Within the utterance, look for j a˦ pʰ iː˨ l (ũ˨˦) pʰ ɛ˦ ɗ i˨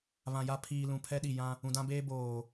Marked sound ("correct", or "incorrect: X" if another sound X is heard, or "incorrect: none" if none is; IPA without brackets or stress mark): incorrect: ũ˨